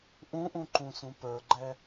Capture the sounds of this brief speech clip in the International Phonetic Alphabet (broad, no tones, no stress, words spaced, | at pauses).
ʔũʔũǃũsũ pə˞ɡ͡ǃɛ